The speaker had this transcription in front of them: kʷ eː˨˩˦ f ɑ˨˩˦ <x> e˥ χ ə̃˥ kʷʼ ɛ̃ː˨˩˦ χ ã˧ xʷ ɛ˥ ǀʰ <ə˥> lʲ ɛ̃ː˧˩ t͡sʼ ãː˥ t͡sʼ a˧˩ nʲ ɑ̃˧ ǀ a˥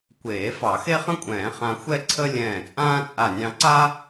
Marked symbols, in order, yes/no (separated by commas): yes, yes